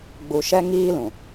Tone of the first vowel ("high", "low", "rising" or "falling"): low